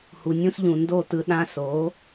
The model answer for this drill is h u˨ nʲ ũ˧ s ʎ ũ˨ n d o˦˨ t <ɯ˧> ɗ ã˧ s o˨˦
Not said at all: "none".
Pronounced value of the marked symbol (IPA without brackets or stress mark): ɯ˧